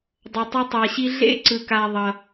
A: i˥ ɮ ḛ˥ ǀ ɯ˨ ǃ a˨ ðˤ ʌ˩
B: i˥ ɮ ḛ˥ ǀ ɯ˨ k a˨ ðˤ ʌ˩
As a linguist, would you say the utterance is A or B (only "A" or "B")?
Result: B